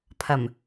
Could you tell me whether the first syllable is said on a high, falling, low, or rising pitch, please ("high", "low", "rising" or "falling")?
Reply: low